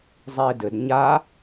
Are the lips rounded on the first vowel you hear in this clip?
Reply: no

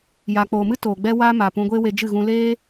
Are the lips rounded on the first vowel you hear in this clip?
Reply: no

